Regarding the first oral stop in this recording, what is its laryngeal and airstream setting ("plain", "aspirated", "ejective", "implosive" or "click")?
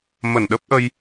implosive